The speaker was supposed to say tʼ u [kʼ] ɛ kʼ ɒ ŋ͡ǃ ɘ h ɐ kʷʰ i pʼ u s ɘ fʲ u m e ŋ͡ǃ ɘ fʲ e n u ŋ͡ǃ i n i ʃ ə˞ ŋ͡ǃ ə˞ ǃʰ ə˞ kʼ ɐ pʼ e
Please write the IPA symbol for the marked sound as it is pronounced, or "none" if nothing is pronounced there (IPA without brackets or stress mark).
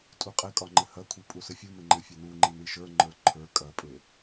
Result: qʼ